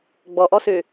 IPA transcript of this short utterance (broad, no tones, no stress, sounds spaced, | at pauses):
ɡ͡b ɔ ʔ ɔ s øː